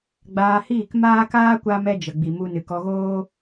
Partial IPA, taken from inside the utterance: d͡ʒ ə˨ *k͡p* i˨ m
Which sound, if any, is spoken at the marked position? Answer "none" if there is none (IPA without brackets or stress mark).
ɡ͡b